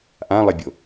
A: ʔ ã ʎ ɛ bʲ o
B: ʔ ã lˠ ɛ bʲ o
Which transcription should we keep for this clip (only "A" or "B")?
B